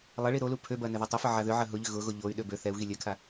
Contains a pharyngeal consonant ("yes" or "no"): yes